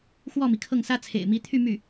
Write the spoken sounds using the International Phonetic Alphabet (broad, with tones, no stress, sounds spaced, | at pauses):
x w ɔ˥˩ m i˩ kʰ ɤ˥˩ ŋ s ä˥ t͡sʰ ḛ˨˩ ɪ̯ m i˧˥ t̪ʰ y˥˧ m y˥˩